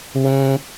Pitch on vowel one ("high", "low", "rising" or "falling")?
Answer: high